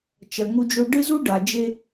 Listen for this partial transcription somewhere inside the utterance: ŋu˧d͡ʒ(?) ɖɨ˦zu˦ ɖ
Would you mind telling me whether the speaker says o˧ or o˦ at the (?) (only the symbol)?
o˧